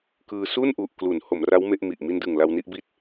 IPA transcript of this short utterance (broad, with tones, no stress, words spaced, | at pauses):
kɯː˧ su˥˩nʔu˨˩ʔ klu˩˦n ho˩˦mra˦˥w me˦˥ʔmi˨˩ʔ mi˧ndɯ˨˩ŋ la˧wni˥˩ʔbi˦˥t̚